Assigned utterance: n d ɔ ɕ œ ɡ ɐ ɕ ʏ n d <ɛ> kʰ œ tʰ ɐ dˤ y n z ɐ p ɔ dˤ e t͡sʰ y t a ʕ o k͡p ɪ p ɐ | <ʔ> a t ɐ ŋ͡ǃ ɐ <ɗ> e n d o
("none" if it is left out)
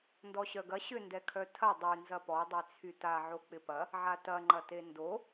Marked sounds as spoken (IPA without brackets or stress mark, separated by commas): ɛ, ʕ, t